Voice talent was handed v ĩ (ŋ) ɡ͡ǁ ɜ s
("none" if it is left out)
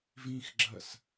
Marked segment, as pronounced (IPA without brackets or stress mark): x